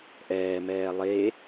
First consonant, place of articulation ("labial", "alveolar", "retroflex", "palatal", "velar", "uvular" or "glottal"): glottal